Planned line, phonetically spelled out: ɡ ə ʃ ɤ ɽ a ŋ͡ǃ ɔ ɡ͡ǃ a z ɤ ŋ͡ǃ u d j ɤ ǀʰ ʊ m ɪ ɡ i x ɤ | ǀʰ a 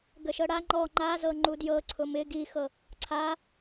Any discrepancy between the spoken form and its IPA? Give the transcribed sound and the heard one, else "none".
ɡ͡ǃ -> ŋ͡ǃ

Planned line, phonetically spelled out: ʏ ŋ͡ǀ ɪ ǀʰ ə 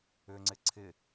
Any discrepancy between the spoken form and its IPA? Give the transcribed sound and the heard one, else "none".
ə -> ɪ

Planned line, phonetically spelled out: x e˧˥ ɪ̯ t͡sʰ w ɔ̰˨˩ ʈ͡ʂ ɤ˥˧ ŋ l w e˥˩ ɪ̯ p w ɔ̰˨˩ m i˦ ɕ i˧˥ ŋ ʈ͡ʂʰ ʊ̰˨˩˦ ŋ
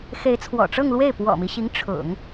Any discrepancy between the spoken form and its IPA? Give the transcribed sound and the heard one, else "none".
none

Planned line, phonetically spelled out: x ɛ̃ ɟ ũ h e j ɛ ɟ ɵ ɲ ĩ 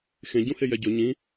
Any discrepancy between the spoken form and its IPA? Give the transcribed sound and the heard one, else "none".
ɛ̃ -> ẽ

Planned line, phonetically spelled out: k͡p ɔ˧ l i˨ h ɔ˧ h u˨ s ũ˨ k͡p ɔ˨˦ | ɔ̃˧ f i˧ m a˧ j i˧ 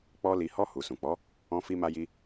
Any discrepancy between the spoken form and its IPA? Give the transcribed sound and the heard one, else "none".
none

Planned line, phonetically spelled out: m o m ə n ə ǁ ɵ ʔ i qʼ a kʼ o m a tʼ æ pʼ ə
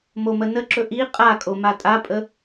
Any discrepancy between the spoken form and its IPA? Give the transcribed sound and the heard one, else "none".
æ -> a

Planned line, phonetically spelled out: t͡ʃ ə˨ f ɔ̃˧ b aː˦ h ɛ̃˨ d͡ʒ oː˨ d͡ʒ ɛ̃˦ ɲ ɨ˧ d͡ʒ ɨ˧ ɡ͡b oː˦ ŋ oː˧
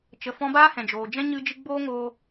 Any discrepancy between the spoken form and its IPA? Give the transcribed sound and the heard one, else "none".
none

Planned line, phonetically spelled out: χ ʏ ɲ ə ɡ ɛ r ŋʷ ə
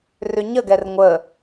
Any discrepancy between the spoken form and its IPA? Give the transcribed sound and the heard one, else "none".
χ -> r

